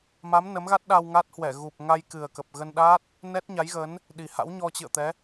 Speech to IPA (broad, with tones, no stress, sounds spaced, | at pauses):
m a˨˦ m n ə˨˦ m ɣ a˦˥ t̚ ɗ a˧ w ŋ a˦˥ t̚ h w ɛ˧˩ ɣ u˨˩ p̚ ŋ a˧ j k ɨ˨˩ ə̯ k ə˨˩ p̚ ɣ ə˧ n ɗ a˦˥ t̚ | n ɛ˦˥ t̚ ɲ a˨˦ j ɣ ə˨˦ n | ɗ i˨˩ h a̰˧˥ w ɲ ɔ˧ t͡ɕ ɨ̰˧˨ ə̯ t̪ ɛ˨˦